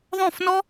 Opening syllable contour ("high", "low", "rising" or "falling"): falling